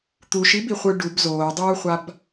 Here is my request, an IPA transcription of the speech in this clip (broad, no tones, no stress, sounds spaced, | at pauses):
t̪ u ʃ i b i χʷ ɯ ɖ u b z oː dˤ uː χʷ a b